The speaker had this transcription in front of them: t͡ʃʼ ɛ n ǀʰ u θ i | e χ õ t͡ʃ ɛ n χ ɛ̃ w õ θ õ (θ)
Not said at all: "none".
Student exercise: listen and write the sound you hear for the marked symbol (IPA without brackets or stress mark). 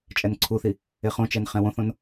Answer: n